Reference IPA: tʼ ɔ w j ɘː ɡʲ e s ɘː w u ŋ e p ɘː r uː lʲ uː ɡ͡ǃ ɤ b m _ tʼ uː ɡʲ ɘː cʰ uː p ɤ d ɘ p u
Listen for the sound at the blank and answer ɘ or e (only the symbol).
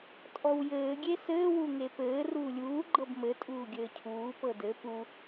ɘ